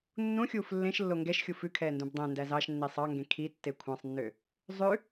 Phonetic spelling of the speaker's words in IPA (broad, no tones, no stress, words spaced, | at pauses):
nːũxʲuːf lːẽʃlːo ŋɡɛʃxʲu fʉkʰɛːndũb dˤɛ̃ndæz ɑʃnːi sˤɑŋɡẽ kʰitːe kʷʰɑ̃sˤnːø | zˤʉ